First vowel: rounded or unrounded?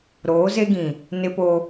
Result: rounded